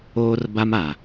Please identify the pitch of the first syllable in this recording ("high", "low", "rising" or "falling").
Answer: high